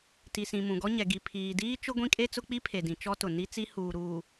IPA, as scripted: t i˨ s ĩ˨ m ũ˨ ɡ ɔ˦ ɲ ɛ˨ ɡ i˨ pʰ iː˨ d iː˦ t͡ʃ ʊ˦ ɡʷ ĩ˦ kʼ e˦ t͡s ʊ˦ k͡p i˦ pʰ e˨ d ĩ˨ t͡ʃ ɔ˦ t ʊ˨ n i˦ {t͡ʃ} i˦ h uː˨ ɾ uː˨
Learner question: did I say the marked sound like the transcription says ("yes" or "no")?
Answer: no